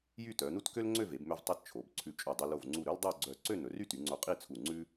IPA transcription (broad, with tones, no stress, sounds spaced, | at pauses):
j y˥˧ t œ˩˧ n u˥ t k ø˥ l ŋ͡ǀ ø˥˧ v e˩˧ b m ø˧ v tˤ i˧ t t͡ʃʰ o˩˧ b ǀʰ ʉ˧˩ t͡ʃʼ ɵ˧˩ dˤ i˧ l o˧˩ v ŋ͡ǀ u˧˩ ɾ ɵ˥ l dˤ o˥˧ ɡ͡ǀ œ˧˩ ǀ ø˥˧ n ɵ˩˧ r y˥˧ t y˩˧ ŋ͡ǀ o˧ qʼ i˥˧ t͡sʰ u˧˩ ŋ͡ǀ ʉ˥